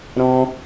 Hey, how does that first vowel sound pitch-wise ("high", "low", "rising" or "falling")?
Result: high